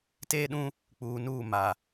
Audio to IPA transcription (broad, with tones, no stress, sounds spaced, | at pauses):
t eː˦ ɗ ũ˦ | k͡p uː˨ n uː˦˨ m a˨